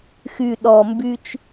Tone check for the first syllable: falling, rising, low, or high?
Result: low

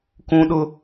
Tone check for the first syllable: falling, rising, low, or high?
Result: high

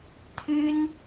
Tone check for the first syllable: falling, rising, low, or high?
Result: high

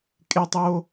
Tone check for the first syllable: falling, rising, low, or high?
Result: high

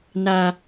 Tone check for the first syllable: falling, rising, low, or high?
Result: high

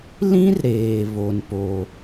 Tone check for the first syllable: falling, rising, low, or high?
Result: high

